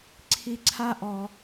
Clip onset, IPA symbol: ǀʰ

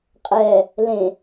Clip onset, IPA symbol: qʼ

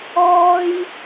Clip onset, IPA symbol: ɔː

